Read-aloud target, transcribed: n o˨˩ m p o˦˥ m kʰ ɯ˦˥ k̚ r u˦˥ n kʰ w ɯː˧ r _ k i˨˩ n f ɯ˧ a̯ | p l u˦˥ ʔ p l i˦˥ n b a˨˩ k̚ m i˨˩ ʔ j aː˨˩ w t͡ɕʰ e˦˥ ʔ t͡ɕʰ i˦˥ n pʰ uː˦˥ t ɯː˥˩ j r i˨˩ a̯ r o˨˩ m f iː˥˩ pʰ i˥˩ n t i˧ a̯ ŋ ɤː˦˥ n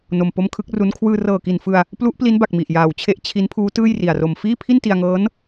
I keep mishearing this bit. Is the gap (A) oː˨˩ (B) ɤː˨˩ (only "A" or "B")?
B